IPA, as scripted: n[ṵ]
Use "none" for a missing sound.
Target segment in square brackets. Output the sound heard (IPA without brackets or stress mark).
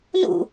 ṵ